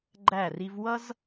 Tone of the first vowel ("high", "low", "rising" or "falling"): falling